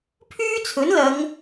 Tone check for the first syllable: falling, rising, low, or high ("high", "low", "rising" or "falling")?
high